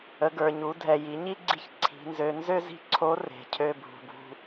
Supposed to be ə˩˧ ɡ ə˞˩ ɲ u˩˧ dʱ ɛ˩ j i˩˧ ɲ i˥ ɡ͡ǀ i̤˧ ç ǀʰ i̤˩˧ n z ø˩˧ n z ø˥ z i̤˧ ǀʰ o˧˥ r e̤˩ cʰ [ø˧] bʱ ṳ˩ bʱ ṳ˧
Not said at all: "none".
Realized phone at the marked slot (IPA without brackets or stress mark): ø˧